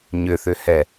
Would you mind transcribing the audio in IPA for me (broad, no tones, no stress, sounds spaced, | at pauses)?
ɲ ʏ θ ʏ h ɛ